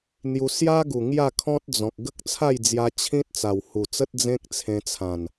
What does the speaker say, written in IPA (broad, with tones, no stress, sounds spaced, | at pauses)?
n̪ j u˧ s j a˦ ɡ u˨˩ ŋ j a˥˧ kʰ ɔ̃˦ t̚ d͡z ɔ̃˨ k̚ ɡ ə˦ k̚ t͡sʰ a˥˧ j d͡z j a˧ t͡ɕʰ ĩ˦ t̚ t͡s a˨˩ w h u˨˩ t͡s ə˦ t̚ d͡z ẽ˦ k̚ t͡sʰ ẽ˧ t͡sʰ ã˨˩ n